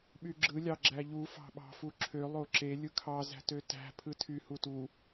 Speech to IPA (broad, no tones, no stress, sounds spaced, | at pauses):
ɓ y ɡ͡ǁ ɯ lʲ ɑ ɡ͡ǁ æ ʎ u f ɑ̤ ɓ ɑ̤ f u ǁʰ ø lˠ o ǁ e lʲ ɯ kʰ ɑ z æ̤ t ø t æ̤ pʰ ɯ tʰ y h u t u